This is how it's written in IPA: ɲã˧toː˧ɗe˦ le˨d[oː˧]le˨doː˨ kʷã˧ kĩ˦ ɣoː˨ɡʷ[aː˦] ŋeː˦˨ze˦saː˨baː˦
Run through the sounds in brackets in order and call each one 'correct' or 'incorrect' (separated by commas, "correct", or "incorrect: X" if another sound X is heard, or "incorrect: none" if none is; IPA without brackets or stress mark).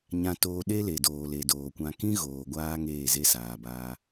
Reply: incorrect: oː˨, correct